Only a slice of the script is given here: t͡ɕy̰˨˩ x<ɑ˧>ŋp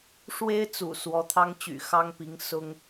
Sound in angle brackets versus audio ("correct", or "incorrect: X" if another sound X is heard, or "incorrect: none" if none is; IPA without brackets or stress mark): incorrect: ɑ˥